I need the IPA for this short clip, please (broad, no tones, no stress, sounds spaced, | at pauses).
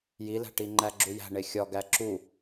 j i l æ̤ ʈ i ŋ͡ǃ æ ɡ͡ǁ u j æ̤ ɳ e xʲ ɒ ɡ æ ǁ u